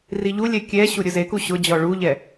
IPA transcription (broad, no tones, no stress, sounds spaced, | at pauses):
r i ʎ u lʲ ɛ kʲ ɛ ɕ u ɾʲ ʊ z e k u ɕ ʊ d͡ʑ ɔ ɭ u ʎ ɛ